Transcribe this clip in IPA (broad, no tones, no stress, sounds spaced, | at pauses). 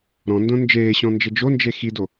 ɾ ɔ̃ n d õ n d͡ʒ eː ɕ ɔ̃ n d͡ʒ ɘ d͡ʒ o n d͡ʒ e x i d o